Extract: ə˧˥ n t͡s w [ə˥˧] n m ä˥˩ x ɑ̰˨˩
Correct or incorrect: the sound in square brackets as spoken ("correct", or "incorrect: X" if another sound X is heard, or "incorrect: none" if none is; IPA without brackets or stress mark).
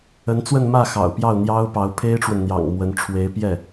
correct